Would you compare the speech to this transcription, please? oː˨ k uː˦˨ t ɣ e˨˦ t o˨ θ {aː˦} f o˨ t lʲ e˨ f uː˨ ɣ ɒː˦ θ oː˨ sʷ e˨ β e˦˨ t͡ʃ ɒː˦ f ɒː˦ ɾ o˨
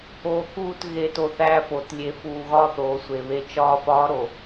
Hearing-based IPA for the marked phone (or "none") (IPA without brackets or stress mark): æː˦